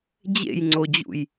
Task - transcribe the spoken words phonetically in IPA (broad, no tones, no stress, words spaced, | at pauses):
d͡ʑḛjŋ͡ǀod͡ʑṵj